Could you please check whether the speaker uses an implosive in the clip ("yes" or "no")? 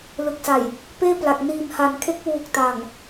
no